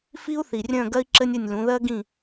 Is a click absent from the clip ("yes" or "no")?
no